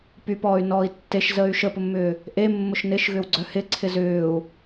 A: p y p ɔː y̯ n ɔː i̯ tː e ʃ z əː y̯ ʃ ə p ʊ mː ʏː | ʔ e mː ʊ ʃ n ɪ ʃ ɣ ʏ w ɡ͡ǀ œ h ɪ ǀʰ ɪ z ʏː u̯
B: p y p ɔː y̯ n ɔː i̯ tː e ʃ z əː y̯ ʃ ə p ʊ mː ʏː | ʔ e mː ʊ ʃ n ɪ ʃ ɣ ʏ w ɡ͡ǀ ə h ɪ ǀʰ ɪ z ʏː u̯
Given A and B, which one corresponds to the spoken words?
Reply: A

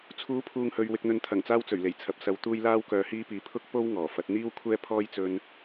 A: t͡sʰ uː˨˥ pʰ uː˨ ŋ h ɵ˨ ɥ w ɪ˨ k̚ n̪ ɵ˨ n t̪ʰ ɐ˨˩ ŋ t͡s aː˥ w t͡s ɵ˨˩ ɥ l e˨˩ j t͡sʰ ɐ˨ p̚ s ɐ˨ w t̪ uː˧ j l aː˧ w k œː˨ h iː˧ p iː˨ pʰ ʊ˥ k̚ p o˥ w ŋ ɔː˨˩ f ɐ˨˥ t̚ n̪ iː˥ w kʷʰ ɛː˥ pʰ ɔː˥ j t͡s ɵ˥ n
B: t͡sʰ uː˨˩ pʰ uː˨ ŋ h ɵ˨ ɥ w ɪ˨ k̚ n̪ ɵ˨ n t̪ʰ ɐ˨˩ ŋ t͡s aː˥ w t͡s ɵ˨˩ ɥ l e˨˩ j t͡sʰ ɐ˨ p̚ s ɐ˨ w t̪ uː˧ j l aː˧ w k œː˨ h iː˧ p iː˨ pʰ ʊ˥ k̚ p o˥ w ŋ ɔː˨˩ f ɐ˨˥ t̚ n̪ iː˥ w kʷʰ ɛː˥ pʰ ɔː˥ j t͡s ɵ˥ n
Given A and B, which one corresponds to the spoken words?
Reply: A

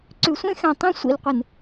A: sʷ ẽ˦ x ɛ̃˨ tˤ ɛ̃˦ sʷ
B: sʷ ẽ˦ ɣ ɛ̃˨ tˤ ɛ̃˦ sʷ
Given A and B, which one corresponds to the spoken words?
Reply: A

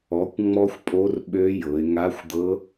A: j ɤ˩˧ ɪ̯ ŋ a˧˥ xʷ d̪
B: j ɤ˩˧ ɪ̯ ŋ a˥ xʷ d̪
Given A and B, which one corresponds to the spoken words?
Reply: A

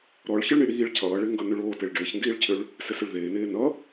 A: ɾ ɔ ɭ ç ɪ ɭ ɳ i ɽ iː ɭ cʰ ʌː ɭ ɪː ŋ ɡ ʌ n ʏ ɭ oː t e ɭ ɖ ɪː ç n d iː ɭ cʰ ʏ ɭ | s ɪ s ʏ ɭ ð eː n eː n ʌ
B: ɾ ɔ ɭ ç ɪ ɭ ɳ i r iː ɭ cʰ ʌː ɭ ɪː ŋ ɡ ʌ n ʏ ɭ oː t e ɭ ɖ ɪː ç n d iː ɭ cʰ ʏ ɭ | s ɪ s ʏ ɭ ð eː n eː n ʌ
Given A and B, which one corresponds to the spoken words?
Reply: A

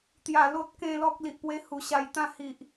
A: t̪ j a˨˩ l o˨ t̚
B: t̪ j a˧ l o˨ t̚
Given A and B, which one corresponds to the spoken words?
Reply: A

